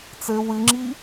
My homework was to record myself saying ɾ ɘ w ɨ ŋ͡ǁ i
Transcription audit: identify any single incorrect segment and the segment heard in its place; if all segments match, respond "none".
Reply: ɾ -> t͡s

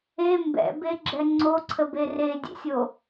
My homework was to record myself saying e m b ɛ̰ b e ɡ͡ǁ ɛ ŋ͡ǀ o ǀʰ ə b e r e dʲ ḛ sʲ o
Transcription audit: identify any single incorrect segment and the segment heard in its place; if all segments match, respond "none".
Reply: none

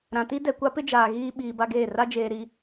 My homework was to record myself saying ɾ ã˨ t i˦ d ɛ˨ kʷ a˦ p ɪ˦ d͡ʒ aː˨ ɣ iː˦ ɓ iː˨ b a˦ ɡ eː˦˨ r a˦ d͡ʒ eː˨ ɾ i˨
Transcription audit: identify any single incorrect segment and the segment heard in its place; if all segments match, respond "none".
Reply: none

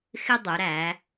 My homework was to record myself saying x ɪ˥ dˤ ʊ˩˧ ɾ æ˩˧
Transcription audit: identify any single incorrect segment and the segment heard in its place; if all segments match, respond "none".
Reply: none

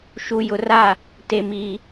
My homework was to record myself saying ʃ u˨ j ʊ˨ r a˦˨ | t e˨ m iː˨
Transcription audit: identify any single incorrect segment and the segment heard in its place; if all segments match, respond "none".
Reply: none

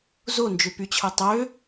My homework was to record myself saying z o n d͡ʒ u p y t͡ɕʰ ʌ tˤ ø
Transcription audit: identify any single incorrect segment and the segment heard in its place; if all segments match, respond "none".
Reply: u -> ø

